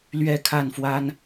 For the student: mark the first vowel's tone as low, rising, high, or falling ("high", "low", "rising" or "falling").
falling